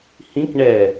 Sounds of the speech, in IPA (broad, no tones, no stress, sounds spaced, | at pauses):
h ĩ k ɳ ɛ